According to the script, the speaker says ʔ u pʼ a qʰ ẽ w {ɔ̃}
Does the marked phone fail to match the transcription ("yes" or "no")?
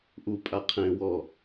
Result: yes